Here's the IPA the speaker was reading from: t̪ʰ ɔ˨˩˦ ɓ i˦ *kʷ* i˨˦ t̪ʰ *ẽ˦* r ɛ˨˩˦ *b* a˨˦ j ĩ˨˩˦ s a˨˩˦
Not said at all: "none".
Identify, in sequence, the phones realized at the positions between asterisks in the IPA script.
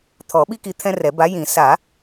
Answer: k, ɛ̃˦, b

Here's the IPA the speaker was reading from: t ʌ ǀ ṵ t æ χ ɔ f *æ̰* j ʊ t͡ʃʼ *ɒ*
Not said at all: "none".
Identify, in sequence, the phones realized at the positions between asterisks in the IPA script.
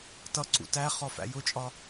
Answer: æ̰, ɒ

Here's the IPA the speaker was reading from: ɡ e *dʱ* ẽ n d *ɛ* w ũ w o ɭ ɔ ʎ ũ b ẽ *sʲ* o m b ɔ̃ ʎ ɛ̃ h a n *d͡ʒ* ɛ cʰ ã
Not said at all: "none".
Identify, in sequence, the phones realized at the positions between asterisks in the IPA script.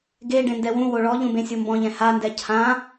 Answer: ɖ, ɛ, sʲ, d

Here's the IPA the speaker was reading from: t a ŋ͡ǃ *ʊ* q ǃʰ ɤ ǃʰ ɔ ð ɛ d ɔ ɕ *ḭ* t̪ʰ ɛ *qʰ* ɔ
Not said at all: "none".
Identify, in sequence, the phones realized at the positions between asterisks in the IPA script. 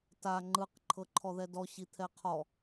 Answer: ɯ, i, qʰ

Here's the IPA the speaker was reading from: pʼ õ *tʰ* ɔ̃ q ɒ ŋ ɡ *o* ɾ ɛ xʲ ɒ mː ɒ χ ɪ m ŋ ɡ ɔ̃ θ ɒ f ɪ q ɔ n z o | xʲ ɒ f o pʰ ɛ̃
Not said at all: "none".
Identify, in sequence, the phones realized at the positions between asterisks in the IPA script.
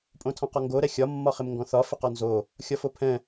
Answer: tʰ, o

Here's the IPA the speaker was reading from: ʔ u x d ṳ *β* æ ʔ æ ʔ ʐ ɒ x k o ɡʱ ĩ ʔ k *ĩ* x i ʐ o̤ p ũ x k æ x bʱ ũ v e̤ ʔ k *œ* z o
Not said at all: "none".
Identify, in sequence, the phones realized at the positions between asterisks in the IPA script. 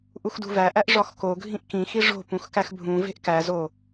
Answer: v, ĩ, æ

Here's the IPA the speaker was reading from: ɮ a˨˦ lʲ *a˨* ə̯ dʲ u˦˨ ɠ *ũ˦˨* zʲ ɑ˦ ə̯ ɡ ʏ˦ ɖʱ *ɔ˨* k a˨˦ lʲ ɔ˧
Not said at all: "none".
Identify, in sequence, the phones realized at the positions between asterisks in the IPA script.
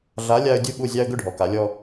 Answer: a˧, u˦˨, ɔ˨

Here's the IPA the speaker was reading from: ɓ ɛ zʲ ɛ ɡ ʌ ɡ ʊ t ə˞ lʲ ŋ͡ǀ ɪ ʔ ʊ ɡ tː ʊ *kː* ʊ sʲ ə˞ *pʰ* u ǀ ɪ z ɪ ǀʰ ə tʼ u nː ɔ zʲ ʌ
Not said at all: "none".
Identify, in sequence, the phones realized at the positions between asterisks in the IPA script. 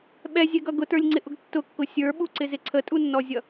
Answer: kː, ɓ

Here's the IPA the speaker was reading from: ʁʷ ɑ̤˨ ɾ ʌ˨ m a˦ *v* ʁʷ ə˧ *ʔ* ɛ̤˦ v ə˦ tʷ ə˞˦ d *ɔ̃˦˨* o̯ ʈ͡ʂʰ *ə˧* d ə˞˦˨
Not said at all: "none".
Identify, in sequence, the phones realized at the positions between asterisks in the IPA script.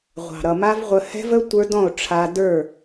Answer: v, h, ɔ̃˦˨, a˧

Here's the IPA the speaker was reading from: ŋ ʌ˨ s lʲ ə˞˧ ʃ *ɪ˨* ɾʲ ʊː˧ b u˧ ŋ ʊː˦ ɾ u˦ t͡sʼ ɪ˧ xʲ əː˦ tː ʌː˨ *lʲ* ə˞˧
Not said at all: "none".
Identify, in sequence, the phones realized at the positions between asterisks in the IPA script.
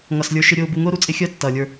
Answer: ɪ˧, lʲ

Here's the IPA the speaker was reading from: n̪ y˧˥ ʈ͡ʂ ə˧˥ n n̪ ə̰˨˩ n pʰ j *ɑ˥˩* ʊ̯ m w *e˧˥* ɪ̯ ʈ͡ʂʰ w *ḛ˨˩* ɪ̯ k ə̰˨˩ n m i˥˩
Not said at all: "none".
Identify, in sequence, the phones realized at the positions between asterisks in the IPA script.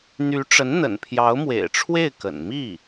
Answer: ɑ˧˥, ḛ˨˩, e˥˩

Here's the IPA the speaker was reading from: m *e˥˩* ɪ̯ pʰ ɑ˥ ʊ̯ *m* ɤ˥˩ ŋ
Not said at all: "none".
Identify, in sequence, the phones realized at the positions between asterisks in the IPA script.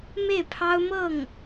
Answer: e˥˩, m

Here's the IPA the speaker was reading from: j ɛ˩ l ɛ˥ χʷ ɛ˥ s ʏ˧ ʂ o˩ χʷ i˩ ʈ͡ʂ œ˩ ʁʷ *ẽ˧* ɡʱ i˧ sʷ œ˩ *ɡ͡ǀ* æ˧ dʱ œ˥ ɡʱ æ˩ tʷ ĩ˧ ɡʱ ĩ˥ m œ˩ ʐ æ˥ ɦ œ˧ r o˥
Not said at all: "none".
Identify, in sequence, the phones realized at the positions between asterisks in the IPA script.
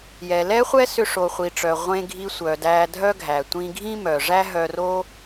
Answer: ẽ˧, d

